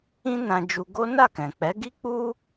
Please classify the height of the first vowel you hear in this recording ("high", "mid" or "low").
high